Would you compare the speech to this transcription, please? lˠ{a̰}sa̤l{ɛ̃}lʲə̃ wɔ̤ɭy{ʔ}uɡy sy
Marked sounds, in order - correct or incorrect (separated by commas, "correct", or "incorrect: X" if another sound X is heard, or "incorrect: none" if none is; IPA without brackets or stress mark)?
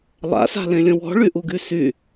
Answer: correct, incorrect: ẽ, correct